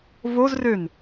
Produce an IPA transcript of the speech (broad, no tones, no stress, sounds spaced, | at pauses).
v o z r ø n